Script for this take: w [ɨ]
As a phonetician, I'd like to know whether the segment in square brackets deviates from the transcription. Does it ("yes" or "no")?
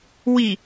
yes